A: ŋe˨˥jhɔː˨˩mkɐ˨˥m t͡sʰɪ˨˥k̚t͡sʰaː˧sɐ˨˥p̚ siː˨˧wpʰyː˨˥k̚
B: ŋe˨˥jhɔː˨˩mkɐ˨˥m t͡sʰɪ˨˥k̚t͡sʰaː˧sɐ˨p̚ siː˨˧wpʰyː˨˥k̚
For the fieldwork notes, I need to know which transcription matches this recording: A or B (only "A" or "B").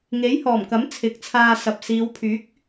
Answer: B